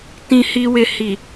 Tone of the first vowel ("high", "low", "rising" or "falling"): low